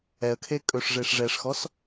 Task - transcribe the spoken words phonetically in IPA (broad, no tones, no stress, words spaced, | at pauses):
ɛə̯kʰe kʼɵʂʐeʂ ʐɛʂxɔs